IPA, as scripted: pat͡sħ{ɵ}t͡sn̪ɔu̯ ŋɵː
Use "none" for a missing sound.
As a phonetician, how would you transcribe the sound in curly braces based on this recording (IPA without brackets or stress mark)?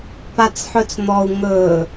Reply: ɵ